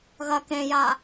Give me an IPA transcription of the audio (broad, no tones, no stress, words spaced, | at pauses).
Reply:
ɣɐ kẽja